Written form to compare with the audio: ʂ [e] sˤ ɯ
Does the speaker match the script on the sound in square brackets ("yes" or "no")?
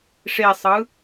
yes